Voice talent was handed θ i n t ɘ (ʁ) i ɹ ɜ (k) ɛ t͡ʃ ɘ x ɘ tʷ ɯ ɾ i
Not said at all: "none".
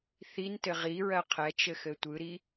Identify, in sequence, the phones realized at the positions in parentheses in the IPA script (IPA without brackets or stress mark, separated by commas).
ʁ, qʰ